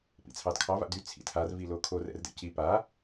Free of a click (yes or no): yes